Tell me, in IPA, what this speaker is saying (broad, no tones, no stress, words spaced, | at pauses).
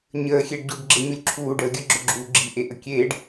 ɲəːxʲeɖɟuɖ ɡ͡ǁeɲulʲǁʰuːɖəː ɡʲəɡ͡ǁɵ ɡ͡ǁuːɡ͡ǁiʔe ʔəkʲeːɖ